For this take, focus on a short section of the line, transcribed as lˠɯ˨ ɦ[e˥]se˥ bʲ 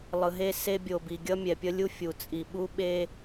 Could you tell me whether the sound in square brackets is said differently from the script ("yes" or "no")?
no